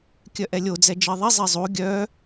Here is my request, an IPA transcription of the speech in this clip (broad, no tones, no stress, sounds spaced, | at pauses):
kʲ œ ʔ ɛ lʲ o d͡z ɛ d͡ʒ i ðˤ i zˤ i zˤ u ɡʲ œ